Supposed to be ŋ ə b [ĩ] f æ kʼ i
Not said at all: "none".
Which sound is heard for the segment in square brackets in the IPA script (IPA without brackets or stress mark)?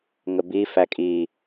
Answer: i